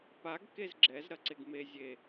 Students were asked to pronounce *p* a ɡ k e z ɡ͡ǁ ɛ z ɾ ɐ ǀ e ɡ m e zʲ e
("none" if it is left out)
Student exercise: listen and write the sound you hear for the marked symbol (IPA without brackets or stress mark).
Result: p